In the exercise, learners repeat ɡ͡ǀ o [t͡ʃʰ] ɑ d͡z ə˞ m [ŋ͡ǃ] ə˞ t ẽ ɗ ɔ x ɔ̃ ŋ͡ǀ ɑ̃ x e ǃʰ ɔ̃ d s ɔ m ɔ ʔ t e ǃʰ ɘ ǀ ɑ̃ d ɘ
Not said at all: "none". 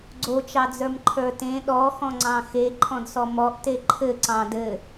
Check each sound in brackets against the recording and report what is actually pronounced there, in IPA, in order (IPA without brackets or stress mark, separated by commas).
t͡ʃ, ǃʰ